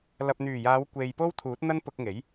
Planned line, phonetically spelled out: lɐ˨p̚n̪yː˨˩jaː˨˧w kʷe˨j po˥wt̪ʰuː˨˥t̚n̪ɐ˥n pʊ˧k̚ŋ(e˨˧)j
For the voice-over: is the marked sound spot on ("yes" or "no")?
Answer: no